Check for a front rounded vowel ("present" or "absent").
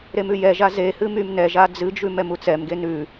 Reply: present